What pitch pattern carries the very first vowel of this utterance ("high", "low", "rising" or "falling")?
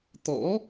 rising